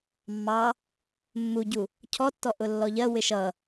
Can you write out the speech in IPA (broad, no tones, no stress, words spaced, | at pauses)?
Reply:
mːɑ | mːuɟu | cʰɔtːɔ ʔʊlːɔʎɜ wɪʃʌ